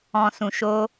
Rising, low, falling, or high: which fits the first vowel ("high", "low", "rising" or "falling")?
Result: low